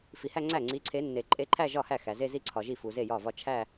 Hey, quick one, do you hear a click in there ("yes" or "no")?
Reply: yes